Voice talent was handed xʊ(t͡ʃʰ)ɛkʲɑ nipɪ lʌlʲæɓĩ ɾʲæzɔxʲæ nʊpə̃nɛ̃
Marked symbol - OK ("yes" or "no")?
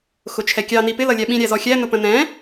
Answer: yes